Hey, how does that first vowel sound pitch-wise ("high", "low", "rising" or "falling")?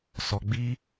low